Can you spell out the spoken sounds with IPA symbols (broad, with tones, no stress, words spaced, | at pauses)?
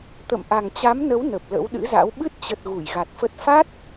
t̪ə̰˧˨mʔa˨˩ŋt͡ɕa˨˦mnə˨˦w nə˨˩p̚lə̰˧˥wɗɨ̰˧˥za̰˧˥w ɓɨ˦˥t̚t͡ɕə˨˩t̚ ɣu˧˩jɣa˨˩t̚fə˦˥t̚ fa˦˥t̚